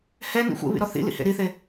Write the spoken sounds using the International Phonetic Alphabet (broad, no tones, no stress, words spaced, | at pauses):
hɛnḭ xʷḛβḭɾɔ θḭlḭhḛ ɾiθe